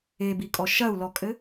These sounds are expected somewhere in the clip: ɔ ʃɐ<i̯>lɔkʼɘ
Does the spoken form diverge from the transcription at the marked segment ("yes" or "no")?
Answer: yes